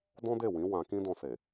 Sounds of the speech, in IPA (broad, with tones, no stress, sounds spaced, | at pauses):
d ɔ̃˦ d e˦˨ w ĩ˨˦ w ã˧ k ĩ˦ d ɔ̃˧ s e˨